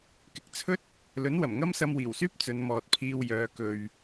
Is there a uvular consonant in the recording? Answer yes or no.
no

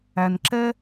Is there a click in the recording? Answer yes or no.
yes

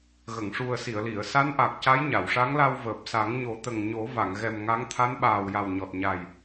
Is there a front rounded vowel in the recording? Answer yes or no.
no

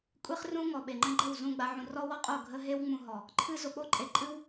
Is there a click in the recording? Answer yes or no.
yes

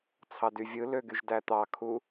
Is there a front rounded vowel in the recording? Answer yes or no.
yes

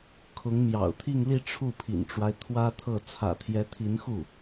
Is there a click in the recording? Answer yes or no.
no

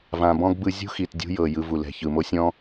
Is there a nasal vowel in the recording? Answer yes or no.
yes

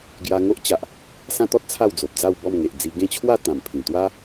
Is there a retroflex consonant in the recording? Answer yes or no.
no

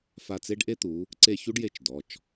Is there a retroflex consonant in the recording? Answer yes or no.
yes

